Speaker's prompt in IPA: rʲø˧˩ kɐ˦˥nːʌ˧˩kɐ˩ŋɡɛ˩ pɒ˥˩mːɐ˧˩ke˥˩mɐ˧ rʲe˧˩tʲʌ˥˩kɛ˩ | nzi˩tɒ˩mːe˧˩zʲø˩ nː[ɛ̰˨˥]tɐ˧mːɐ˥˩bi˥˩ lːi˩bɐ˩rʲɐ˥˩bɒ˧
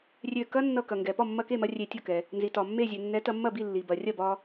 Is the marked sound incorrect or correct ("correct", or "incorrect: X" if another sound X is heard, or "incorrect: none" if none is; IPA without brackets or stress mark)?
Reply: incorrect: ɛ˨˥